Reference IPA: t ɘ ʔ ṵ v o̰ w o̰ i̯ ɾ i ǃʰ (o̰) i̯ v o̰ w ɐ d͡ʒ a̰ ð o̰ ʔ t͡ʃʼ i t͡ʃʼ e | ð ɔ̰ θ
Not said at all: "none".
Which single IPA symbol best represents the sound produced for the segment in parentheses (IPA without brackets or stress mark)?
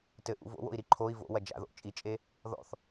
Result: o